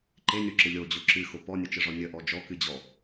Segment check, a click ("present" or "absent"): present